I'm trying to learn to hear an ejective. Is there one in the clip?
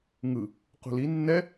no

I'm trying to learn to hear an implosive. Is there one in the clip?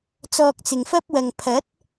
no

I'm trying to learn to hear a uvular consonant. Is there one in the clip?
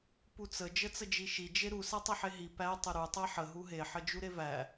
no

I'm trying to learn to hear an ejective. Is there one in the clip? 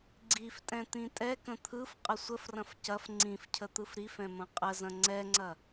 yes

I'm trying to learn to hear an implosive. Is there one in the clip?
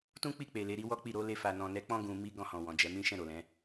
no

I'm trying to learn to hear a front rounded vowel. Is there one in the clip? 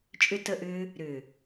yes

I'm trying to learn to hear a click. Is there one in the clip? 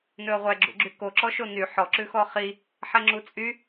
yes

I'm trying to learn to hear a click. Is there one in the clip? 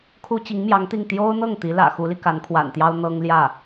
no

